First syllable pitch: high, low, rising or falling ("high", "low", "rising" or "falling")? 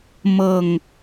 falling